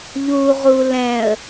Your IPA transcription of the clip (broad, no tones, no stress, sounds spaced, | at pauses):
ʎ u ʁ u l ɛ̃ ə̯